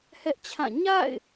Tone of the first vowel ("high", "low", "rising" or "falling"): high